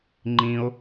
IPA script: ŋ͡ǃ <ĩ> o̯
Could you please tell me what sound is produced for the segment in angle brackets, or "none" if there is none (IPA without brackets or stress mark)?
ĩ